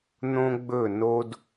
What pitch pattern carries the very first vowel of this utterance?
high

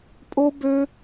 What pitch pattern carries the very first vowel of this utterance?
high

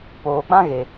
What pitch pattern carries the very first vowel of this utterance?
low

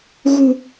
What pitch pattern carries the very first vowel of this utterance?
low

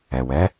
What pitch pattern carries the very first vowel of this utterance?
low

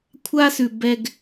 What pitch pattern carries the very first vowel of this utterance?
high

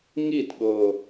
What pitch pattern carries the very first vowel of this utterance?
falling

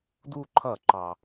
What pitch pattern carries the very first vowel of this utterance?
falling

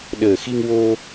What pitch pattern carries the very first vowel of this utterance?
low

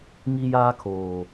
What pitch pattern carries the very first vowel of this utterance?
high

